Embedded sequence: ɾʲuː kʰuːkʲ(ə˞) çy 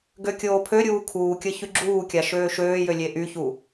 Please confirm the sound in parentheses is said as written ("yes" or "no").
no